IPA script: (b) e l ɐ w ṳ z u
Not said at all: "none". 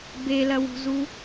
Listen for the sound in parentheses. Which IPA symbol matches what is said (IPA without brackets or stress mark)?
b